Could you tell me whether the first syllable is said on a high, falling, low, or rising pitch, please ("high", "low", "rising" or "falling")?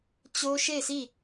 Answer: high